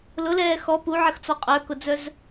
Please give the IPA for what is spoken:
lʊlɛː xɔ puʕəxt͡sɔ qʼœkʊd͡zœz

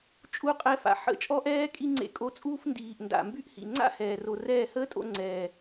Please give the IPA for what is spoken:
t͡ʃʼu˦˨qʼɛ˧fa̰˨ ħə̰˦˨ t͡ʃʼɔ˦ʔɛː˦ kʼi˦ŋ͡ǀḛ˧kʼo˧t͡sʼuː˦f ndiː˨ʔnda̰˨ mby˦ʔhḭ˨ ŋ͡ǀa̰˦ hɛː˨ro˨rɛː˦˨ həː˦tʼo̰˧ŋ͡ǀɛː˨

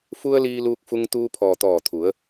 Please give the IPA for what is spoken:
fu˧ə̯ liː˧luː˧k̚fu˧ŋ t̪uː˧pʰɔː˩ t̪ɔː˧˩t̪ʰu˩˧ə̯

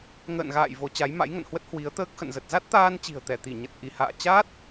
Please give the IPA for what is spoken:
ŋə̰ː˧˨nɣa̰ː˧˨j vo˨˦t͡ɕa˨˦j ma̰˧˥jŋə̰˧˨nhwə˦˥t̚ hwi˨˦ə̯t̪əː˦˥k̚ xə̰˧˨nzə˨˩t̚ za˦˥t̚t̪aː˧nt͡ɕi̤˨˩ə̯ t̪ɛ˧˩t̪i˧˩ɲə˨˩t̚ ʔi˧˩ha̰ː˧˨ t͡ɕa˦˥t̚

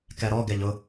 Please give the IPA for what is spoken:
kɛɾɔ ɡɛʎʊ

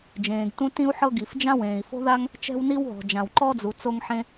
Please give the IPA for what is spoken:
d͡ʒẽː˩ɡ tũ˥ tĩ˥u̯ħɤ˥ ɡi˩f d͡ʒã˥wẽː˩i̯fo̤˥ða˥ŋ | t͡ʃɛ̤˥wni˥wɦɔ̤˩ d͡ʒã˩wǃɔ˥d͡zu˩ t͡so˥ŋħẽ˥

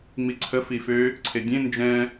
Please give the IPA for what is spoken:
ŋ͡miǀʰə fifø | ǀʰedʲẽ nd͡ʒɛ̃

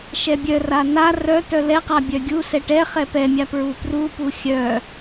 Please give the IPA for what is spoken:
ʃɛbʲœra na rœ tœlɛqa bʲœɡʲusɛ ʈɛ χɛpɛmʲa pɹuprupu xʲœ

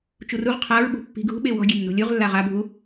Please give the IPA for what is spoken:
t͡ʃuruʁ qʰaɹ ɓṳpːi̤ɡʱṳ ɓewɔ̤ ɡʲenːo̤lʲuʁ lːaʁa bʱu

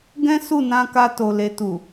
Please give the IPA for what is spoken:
ɡɛ̃˦ su˦˨nã˧ka˧ to˨le˨tu˨

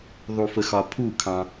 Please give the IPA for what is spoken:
ðˤu˧fə˧ xɒ˧pʰu˥˩kʰɑ̃˧

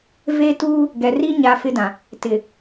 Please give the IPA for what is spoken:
ve˦tuː˦ | ɡɛ˨ri˦ ɲa˦fɪ˦dã˨ | tɪ˨

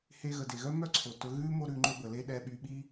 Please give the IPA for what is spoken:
he˧ɣə˩de˩ɣœ˥ mœ˥ǀʰo˩tɵ˧ ɣʉ˥ mo˥ɾʉ˧ŋ͡ǃɵ˥bə˩ le˥ɗɛ˧ɓy˧ ɓi˥

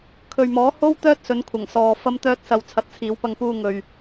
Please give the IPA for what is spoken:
kʰɵ˨ɥmɔː˨˥ ho˥wt̪œː˥t̚sɵ˨˧nkʷʰɐ˨˩ŋ sɔː˨ fɐ˥mt̪œː˥t̚sɐ˧w t͡sʰɐ˨˥t̚t͡sʰiː˨˧wpɐ˧ŋpuː˧ ŋɵ˨ɥ

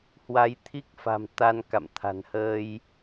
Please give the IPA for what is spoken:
hwa˨˦jt̪ʰi˦˥k̚fa̤˨˩m t̪a˧nka̰˧˨m t̪ʰa̤˨˩nhəː˧j

